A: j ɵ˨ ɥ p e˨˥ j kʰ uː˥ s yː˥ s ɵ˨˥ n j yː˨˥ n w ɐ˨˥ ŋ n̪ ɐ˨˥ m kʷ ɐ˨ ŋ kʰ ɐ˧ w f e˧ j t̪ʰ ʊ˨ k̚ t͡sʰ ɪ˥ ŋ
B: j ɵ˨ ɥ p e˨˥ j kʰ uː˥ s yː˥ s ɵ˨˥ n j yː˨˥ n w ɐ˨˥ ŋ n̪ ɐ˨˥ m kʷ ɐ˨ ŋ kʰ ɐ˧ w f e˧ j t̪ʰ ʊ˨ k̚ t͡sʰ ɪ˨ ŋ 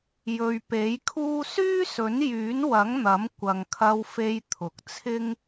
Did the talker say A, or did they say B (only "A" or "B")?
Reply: A